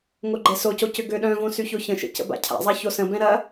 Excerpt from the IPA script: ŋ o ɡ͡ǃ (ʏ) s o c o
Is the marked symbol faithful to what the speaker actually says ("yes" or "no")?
no